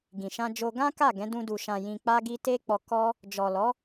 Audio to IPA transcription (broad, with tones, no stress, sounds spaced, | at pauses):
ɡ ĩ˨ ʃ ã˧ d͡ʒ o˧ ɡ ã˦ k a˦˨ ɡ ɛ̃˨˦ d ũ˧ d u˨ ʃ ã˨ j ĩ˨ k͡p a˧ ɡ i˧ t e˦ k͡p ɔ˧ k ɔ˦ | d͡ʒ ɔ˨ l ɔ˨˦